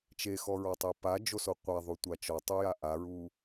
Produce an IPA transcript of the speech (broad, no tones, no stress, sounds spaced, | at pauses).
t͡ʃ e x ɔ ɹ ɔ tˤ e p a d͡ʒ o s o qʷ a ðˤ u tʷ a t͡ʃ ɔ tˤ u j a ʔ a ɹ u